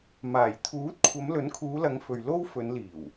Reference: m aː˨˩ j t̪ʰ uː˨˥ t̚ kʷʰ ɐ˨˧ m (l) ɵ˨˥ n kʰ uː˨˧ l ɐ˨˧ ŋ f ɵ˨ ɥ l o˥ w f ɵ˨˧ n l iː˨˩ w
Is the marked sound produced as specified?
yes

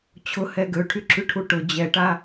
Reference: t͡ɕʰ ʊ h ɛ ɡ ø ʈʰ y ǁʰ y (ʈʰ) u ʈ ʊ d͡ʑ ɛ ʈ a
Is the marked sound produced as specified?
yes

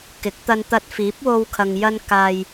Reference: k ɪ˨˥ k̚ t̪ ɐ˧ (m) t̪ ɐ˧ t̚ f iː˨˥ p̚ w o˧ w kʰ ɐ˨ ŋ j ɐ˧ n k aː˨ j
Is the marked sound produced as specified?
no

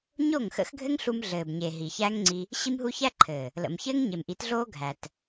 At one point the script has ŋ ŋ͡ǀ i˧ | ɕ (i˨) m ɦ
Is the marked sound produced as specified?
no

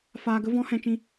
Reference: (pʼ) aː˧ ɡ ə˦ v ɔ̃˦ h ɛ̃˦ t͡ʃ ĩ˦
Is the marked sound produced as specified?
no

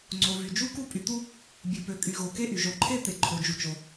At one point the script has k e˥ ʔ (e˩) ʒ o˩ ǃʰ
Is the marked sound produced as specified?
no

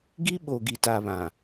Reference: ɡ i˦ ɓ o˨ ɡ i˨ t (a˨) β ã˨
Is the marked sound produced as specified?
yes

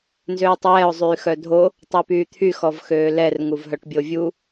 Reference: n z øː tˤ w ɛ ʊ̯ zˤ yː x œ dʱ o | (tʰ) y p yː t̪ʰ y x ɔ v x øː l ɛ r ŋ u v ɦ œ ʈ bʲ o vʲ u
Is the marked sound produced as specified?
no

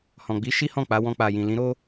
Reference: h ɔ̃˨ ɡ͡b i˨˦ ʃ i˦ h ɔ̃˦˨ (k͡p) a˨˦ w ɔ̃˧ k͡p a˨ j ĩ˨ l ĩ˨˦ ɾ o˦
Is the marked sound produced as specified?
yes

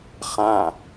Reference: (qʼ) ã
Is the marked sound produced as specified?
no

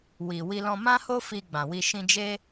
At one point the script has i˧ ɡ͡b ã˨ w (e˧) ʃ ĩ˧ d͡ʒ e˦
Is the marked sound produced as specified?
no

